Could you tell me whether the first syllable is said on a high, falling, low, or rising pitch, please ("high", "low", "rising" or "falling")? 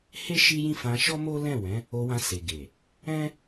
high